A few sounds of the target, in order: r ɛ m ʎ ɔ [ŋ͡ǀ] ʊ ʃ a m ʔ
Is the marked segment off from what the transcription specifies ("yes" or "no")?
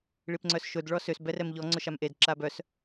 no